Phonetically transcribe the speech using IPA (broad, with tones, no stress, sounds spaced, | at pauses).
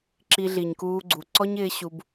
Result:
ǁ i˧ ɮ i˨ ɲ k uː˧ ɡ͡ǀ u˨ ǀ ɔ˦ ɲ ɪː˧ ɕ u˧ b